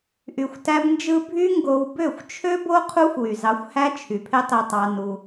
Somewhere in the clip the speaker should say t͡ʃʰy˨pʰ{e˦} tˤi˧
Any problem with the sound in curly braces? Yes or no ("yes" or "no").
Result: no